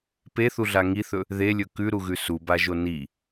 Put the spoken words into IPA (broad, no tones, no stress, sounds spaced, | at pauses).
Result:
p e θ u ɮ a ŋ i θ ɵ | ð e lʲ ɵ k ʉ ɾ u ɣ ʉ s u b a ʒ o n i